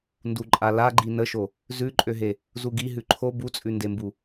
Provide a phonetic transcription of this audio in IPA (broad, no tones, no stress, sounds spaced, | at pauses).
n d u ǃʼ a l a ɡ͡ǃ i n ə ʃ o | z ʉ ǃʼ ø ɦ e | z u ɡ i ɦ ʉ ǃʰ o b u t͡sʼ ʉ n d e m b u